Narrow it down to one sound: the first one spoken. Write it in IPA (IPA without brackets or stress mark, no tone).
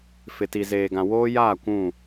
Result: f